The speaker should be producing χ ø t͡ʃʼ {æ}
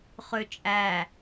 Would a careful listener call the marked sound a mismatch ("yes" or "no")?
no